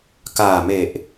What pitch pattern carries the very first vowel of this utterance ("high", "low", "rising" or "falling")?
low